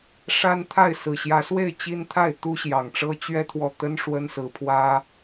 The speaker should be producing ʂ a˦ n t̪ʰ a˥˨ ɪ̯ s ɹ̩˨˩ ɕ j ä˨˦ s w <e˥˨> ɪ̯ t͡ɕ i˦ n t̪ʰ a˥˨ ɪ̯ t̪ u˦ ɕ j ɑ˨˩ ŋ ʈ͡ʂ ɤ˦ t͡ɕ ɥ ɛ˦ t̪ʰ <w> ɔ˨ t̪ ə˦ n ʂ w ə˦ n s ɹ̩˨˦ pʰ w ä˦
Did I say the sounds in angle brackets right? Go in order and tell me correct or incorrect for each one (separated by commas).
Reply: correct, correct